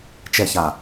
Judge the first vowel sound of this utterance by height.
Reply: mid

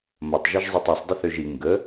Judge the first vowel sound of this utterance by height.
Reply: low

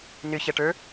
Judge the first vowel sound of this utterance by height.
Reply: high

